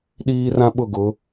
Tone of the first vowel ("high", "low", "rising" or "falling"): high